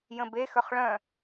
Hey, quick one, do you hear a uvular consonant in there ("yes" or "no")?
yes